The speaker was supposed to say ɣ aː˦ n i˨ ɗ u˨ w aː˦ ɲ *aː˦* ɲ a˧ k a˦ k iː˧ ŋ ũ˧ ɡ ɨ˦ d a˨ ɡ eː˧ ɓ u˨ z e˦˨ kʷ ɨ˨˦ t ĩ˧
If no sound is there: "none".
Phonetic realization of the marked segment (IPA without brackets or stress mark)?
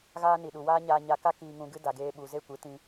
aː˧